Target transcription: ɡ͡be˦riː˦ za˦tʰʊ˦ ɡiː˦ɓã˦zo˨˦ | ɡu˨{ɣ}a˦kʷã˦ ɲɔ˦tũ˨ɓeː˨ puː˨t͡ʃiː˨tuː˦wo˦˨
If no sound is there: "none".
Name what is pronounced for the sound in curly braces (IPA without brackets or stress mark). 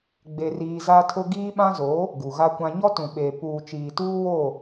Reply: ɣ